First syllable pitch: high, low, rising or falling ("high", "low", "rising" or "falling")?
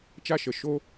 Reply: high